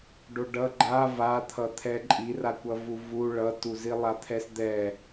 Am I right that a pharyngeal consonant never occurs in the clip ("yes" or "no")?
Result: yes